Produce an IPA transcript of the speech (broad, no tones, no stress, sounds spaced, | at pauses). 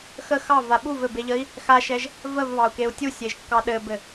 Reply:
x ə x ɑ v a ɓ u v ɘ b e ʎ ə i̯ | x a ʃ ɛ ʒ | v ə v β ɑ u̯ k e u̯ tʲ u sʲ e ʒ kː ɑ ɗ ɘ b ɘ